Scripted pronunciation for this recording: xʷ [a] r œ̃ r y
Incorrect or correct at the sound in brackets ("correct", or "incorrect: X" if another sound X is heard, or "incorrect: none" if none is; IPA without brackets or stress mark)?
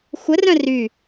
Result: incorrect: ə